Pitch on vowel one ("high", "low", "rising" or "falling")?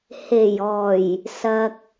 low